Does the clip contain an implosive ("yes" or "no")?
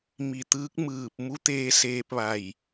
no